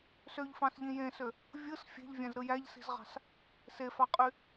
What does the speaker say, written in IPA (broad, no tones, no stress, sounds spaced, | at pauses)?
s ø ʎ f ɑ̃ s ʎ ĩ j ẽ s ø | vʲ ɯ s fʲ e̤ ʎ vʲ æ̃ z ɾ ɯ j æ ʎ s i̤ z ʁ ɑ̤ s | s e f ɑ qʼ y